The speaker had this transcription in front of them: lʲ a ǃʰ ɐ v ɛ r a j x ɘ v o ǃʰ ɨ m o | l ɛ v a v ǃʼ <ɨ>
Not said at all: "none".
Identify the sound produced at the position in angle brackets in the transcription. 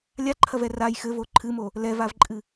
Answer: ɨ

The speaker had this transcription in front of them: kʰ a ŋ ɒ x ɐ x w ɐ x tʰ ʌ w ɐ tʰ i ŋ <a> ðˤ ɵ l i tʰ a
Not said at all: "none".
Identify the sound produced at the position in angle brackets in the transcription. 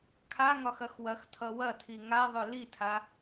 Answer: a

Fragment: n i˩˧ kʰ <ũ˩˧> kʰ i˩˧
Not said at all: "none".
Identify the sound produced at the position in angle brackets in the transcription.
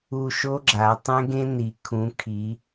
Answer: ũ˩˧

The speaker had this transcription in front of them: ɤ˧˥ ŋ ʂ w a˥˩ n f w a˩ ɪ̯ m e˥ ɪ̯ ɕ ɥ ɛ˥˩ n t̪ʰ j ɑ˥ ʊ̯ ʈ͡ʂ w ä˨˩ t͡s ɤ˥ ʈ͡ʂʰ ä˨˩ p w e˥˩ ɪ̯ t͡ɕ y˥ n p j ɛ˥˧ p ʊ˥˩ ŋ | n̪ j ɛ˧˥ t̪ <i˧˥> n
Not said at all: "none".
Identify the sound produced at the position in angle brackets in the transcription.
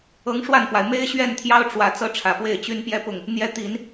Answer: i˨˩˦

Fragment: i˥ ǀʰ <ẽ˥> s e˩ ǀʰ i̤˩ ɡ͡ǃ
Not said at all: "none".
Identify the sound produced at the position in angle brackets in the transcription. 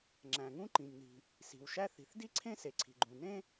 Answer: ẽ˥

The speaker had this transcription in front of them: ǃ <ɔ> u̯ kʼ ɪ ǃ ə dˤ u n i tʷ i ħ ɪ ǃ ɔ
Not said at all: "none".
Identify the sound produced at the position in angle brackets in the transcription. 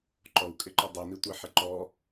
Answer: ɔ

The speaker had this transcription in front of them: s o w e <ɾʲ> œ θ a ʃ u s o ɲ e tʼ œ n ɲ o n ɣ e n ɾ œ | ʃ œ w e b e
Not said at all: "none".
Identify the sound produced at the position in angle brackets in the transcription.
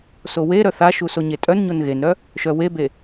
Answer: ɾ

